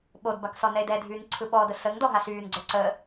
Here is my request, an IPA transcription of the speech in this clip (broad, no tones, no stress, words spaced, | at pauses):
ɓodbak sɔnɛe̯dɛdʱyːn ǀʰɯɓɔdə səŋ dɔɦasyːnɡ͡ǀə˞ ǀə